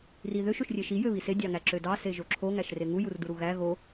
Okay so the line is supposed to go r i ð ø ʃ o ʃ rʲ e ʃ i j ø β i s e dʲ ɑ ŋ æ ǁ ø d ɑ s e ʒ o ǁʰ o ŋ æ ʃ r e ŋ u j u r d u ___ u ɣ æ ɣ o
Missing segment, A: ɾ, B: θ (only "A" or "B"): A